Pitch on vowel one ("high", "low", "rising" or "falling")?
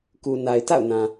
low